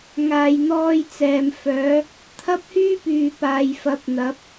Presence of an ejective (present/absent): absent